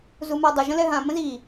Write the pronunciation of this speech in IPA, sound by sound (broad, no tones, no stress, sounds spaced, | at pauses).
z u m a dˤ ə ʒ ə̃ l ɛ ɦ ã m ə̃ z i